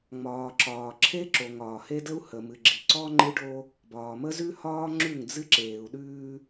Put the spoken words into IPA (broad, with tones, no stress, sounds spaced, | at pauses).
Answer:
ŋ͡m ɒː˨ ǁ ɒː˨ ǁʰ e˦ ǁ o˨ ŋ ɒː˨ h e˦ d ə˦ u̯ h ə˨ m ɨ˨ ɡ͡ǁ i˨ ǀ ɔ˦ ŋ͡ǃ ɨ˦ ɖ o˦ | b ɒː˨ m ə˦ z ʉ˦ h ɒː˦ ŋ͡ǁ ʉ˦˨ ŋ d͡z ɨ˦ ǁ eː˨ u̯ ɗ ʉː˦